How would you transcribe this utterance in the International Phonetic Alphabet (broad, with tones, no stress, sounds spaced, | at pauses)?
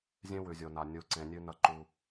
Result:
zʲ ẽ˦ w ʉ˨ zʲ o˨ n a˨ nʲ u˨ ǀ ẽ˨ nʲ ʉ˦ n ɐ˦ ǃ u˦